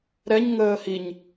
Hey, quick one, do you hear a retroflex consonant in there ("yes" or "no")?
no